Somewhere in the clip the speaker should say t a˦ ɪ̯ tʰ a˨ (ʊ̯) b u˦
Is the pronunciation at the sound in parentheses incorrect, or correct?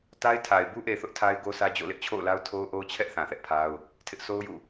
incorrect